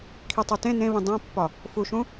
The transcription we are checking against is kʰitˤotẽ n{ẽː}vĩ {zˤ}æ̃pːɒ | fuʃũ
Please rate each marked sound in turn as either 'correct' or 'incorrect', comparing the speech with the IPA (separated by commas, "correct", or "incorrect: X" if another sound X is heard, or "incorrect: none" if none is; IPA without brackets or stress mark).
incorrect: ẽ, incorrect: dˤ